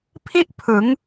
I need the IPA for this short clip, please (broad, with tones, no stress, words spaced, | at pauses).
pʰi˥˩ʔ pʰɯ˩˦ŋ